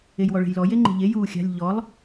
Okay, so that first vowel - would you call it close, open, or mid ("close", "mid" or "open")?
mid